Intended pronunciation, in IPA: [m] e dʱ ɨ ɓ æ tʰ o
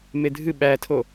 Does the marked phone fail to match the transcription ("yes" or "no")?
no